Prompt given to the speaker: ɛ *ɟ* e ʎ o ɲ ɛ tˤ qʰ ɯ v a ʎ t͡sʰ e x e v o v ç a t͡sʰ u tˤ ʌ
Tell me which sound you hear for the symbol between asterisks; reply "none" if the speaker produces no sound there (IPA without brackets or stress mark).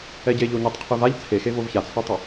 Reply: ɟ